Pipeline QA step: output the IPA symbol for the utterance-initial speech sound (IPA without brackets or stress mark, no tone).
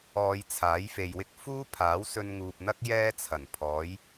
ɔː